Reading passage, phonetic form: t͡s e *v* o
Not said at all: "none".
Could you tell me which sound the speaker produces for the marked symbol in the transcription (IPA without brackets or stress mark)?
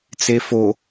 f